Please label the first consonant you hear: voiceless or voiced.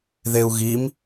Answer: voiced